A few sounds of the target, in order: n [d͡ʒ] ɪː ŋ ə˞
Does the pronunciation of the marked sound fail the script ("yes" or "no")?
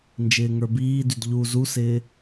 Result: no